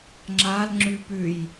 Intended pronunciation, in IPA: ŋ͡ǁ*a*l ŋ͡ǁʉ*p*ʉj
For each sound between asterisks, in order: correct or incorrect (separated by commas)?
correct, correct